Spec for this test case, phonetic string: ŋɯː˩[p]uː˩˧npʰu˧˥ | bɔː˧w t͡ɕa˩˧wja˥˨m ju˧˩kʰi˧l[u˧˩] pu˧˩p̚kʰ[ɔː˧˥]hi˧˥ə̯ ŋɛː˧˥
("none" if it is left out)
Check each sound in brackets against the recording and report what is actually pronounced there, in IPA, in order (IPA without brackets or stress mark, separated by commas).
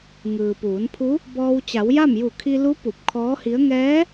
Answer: p, u˧˥, ɔː˧˥